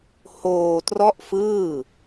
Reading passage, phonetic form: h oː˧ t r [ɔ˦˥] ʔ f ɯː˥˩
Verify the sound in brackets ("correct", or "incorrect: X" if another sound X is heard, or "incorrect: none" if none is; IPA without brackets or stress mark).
incorrect: ɔ˥˩